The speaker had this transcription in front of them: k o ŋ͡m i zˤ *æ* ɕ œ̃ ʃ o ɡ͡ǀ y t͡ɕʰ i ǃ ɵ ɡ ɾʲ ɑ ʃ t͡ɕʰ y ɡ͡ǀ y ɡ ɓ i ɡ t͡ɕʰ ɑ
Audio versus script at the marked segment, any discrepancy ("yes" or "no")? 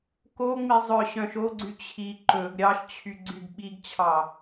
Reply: yes